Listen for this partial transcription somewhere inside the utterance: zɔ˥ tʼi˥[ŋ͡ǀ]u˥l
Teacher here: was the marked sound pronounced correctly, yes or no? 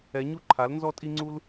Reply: yes